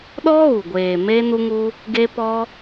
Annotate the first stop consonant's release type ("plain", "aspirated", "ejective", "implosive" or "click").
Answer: implosive